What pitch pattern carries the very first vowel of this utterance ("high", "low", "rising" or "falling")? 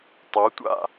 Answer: rising